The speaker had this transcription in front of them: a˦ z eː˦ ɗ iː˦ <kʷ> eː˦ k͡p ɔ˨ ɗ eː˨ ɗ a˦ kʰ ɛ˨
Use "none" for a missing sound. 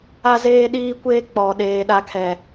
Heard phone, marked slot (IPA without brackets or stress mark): kʷ